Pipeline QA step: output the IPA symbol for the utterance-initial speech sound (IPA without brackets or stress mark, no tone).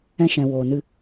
ɛ̃